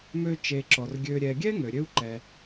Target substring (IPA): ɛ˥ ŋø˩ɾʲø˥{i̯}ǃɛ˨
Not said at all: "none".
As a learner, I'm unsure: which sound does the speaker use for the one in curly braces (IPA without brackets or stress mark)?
u̯